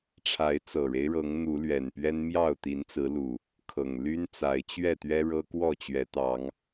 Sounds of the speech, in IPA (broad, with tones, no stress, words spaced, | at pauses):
ʈ͡ʂʰa˨˦ɪ̯t͡sɤ˨˩ɻe˦ɪ̯ɻɤ˨˦ŋ n̪u˨˦lɥɛ˨˩npɥɛ˦n mjɑ˥˨ʊ̯t̪i˨˦n t͡sɹ̩˨˦lu˨˩ | kʰɤ˨˩ŋly˦n t͡sa˨˦ɪ̯t͡ɕɥɛ˥˨t̪ɥɛ˦ ɻɤ˦kwɔ˥˨t͡ɕɥɛ˨˦ t̪ɑ˨˦ŋ